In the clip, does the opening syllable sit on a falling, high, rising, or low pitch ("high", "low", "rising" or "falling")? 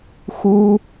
high